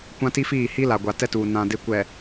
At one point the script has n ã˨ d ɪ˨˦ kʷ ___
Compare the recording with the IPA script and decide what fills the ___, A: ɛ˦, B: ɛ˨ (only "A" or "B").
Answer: B